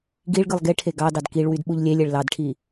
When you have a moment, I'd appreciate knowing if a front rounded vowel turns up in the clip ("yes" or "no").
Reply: yes